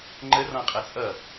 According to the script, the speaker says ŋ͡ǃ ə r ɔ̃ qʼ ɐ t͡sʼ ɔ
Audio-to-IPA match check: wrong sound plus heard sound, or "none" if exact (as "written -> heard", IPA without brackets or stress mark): ɔ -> ʌ